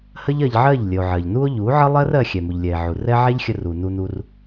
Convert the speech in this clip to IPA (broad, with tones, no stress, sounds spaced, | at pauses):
h ə˦ ʎ ɜ˧ ʎ ʕ ɜ˦˨ ʎ lʲ ə˨ o̯ ʕ ɜ˨ ʎ n u˦ o̯ ʎ u˨˦ ʕ ə˦ lˠ ɜ˦ r ɜ˧ xʲ ɛ˨ m u˨ ʎ lʲ ɛ˨ e̯ ʕ u˨ r ɛ˦ ʕ ɛ˦ ʎ xʲ ə˧ r u˨ n u˧ n u˧ r